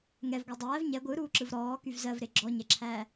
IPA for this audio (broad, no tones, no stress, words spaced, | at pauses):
ŋɛvɡʷɜ dˤæːv ɲɛ ɡʷɯɾuːǁɯv ɾɔːkyv zɜvɾe ɡ͡ǁɔɲɛǁʰæː